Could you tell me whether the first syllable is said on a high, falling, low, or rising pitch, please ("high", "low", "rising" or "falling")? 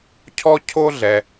high